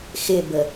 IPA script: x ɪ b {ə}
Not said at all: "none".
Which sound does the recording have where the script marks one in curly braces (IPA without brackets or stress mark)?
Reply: ə